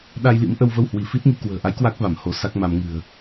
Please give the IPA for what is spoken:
ɗ a˧ j l ḭ˧˥ m ʔ ə˧ w v ə˧ w h w i˧˩ f i˦˥ t̚ ŋ i˧ k w ə̤ː˨˩ ʔ a˨˦ j k w a˦˥ k̚ v a˧˩ m h o˨˦ s a˦˥ k̚ m a˧ m ŋ ɨ̤˨˩ ə̯

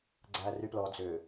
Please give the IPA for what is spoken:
ɡ͡ǀ æ r y p l ɔ d͡z ø

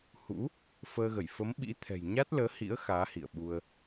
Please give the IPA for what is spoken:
h ṵ˧˥ | f əː˧ ɣ ə˧˩ j f ə˨˦ m ɓ ḭ˧˥ t̪ʰ ɛ̤˨˩ j ɲ a˦˥ t̚ l əː˨˦ h ḭ˧˥ ə̯ x aː˨˦ h ḭ˧˨ ə̯ ɓ u˧ ə̯

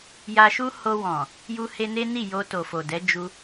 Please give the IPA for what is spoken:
j a˧ ʃ u˦ h o˧ w ɔ̃˨ | j u˧ h e˧ n e˦ n i˦˨ j o˧ t o˨ f o˨ d ɛ˨˦ d͡ʒ u˧

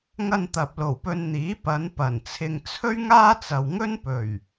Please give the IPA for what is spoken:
ŋ ɐ˧ n t̪ ɐ˨ p̚ l o˨˩ w p ɵ˧ n n̪ iː˨˥ p ɐ˨˧ n p ɐ˨˩ n t͡sʰ ɪ˧ ŋ t͡sʰ ɵ˥ ɥ ŋ aː˥ t͡s ɐ˨ w ŋ ɵ˥ n p ɵ˨˩ ɥ

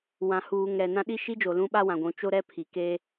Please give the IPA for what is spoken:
w ã˨ h uː˨ ŋ ɾ ɛ˨ n ã˦ ɗ i˦ ʃ i˦ d͡ʒ o˨ l ũ˦ ɓ a˦ w ã˨ ɡʷ ũ˨˦ t͡ʃ o˦ ɾ ɛ˦ pʰ i˨ k e˦

